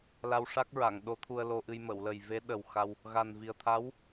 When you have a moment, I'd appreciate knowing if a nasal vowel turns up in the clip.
no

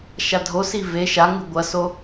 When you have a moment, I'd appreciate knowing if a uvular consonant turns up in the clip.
no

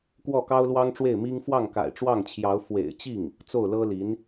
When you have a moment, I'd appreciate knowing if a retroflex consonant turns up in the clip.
yes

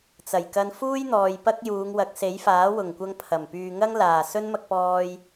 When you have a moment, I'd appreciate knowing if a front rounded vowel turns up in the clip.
yes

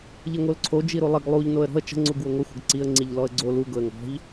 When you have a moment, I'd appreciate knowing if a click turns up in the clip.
yes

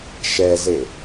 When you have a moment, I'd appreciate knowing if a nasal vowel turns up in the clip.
no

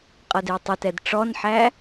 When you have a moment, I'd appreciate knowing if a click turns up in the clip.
no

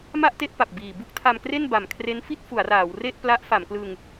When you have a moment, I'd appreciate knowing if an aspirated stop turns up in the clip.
yes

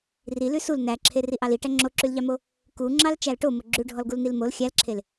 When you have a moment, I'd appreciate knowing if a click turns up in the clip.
yes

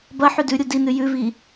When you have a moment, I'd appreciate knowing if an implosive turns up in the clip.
no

